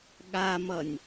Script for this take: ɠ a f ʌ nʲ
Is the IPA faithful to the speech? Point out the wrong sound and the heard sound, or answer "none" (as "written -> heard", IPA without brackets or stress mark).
f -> m